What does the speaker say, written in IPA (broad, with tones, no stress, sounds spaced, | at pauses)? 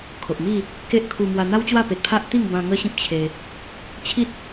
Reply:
kʰ o˨ ʔ m i˥˧ | k e˦ ʔ kʰ u˧ m w a˧ n̪ a˦ w t͡ɕ w a˥˧ p e˨ t̚ pʰ a˦ ʔ t̪ i˥˧ ŋ b ã˧ ŋ ə˦ ɕ ĩ˦ p̚ t͡ɕʰ e˧ | t͡ɕʰ i˦ t̚